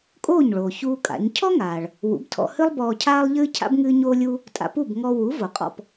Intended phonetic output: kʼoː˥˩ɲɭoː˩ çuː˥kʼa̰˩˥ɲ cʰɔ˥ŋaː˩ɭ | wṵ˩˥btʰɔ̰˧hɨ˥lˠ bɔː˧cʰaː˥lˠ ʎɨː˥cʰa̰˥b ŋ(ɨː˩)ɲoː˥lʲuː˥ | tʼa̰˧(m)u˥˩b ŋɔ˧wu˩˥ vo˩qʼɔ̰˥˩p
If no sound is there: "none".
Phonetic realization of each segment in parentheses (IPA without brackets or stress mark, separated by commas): ɨː˥, p